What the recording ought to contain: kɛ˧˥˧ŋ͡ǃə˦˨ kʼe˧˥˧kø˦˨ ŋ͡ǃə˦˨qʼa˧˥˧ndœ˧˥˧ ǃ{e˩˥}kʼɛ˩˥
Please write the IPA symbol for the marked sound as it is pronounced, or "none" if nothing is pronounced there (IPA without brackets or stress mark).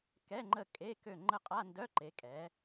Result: e˩˥